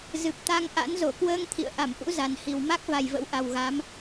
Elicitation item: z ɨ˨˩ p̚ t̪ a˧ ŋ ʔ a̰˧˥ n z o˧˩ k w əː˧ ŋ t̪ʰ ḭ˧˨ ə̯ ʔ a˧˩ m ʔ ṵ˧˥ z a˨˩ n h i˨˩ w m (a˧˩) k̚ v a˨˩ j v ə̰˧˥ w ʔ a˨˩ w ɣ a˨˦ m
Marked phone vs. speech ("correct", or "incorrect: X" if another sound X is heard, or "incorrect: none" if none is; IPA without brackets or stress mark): incorrect: a˦˥